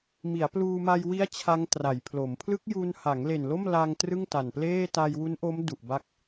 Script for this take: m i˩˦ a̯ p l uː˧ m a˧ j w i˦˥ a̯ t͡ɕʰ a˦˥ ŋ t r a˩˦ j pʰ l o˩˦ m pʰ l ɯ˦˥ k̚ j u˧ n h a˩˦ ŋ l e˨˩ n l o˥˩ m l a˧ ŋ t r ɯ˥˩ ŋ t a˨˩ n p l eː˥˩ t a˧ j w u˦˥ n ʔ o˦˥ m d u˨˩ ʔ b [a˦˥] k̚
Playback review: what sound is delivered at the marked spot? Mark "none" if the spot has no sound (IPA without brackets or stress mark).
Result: a˦˥